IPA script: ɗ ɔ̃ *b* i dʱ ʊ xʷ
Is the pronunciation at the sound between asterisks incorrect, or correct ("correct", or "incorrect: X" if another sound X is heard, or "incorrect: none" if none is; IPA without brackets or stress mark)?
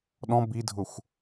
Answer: correct